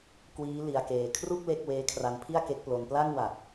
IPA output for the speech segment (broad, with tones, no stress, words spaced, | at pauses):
kwiː˦˥ li˦˥a̯keː˧ kʰru˥˩k̚ le˥˩k̚ weː˦˥kʰra˧npʰi˥˩a̯ ke˦˥k̚plo˧n pla˥˩ŋwa˨˩t̚